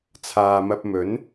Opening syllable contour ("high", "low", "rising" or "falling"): low